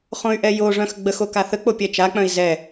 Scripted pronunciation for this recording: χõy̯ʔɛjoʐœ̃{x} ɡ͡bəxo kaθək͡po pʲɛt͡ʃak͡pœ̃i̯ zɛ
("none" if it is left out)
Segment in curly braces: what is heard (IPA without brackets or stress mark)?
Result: x